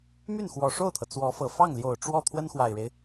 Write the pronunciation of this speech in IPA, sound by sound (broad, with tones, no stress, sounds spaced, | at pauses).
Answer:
m y˥˩ n x w ɔ˨˩ ʂ o˥˩ ʊ̯ t̪ʰ ɤ˩ t͡s w ɔ˧˥ f ɤ˨˩ f ɑ˥˩ ŋ l j o˨˩ ʊ̯ ʈ͡ʂ w ɔ˥˩ t̪ʰ w ə˥ n x w a˨˩ ɪ̯ ɻ e˦ ɪ̯